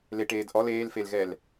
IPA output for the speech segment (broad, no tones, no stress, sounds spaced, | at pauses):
l e ʈ eː d ʔ ɔ l eː l f e l ɣ ɛ l